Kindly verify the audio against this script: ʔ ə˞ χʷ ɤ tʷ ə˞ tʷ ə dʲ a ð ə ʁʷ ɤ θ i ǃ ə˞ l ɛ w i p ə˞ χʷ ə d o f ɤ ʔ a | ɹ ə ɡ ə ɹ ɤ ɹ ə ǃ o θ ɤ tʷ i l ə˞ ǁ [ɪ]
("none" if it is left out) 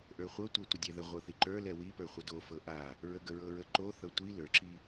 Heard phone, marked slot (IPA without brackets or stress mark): i